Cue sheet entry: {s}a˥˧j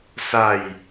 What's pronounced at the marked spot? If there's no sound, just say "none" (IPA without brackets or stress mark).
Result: s